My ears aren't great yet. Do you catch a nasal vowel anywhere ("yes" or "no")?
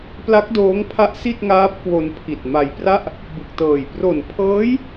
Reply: no